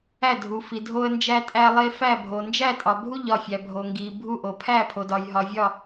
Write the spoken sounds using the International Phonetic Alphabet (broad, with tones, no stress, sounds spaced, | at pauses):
æ˥˨ dʱ u˨ f i˨ dʱ o˦ ə̯ n d͡ʒ æ˦ tʼ æ˦ lˠ e˦ f æ˥˨ bʱ o˨ n d͡ʒ æ˥˨ tʼ ɒ˨ bʱ u˥˨ ʎ ɒ˥˨ fʲ æ˨ bʱ o˨ ŋ ɡ i˨ bʱ u˥˨ ʔ o˨ pʰ æ˥˨ pʰ o˨ d ɒ˨ j ɦ ɒ˨ vʲ ɒ˥˨